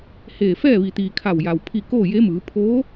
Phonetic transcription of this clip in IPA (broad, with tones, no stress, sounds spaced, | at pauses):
h eː˧˩ f ɛː˥˨ ʋ i˩ t̪ iː˩ kʰ a˧˩ w j a˩ w pʰ i˥˨ k oː˥˨ j e˧˥ m ɯː˩˧ pʰ oː˧˥